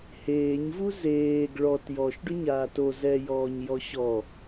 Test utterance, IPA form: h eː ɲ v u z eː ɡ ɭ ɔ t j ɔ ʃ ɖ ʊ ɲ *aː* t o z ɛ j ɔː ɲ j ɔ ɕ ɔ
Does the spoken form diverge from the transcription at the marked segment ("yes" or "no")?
no